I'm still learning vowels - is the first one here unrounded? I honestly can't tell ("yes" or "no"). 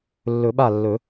no